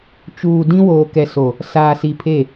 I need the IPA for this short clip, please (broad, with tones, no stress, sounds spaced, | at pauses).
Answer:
t͡ʃ uː˨ d ĩ˦ w oː˨ k ɛ˨ s o˨ | s aː˨ s i˨ pʰ e˦˨